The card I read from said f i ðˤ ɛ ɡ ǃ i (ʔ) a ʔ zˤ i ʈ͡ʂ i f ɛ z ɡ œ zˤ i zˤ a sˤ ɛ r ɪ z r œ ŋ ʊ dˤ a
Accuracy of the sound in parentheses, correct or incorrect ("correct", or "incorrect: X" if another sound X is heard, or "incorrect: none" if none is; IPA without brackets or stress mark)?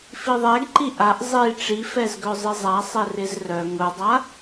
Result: correct